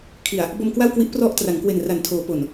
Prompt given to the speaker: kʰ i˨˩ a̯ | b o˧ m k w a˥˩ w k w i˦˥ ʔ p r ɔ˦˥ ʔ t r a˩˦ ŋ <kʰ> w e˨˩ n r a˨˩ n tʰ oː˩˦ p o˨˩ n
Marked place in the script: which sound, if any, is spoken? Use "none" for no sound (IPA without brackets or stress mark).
k